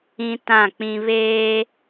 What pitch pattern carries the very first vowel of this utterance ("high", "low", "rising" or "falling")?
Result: high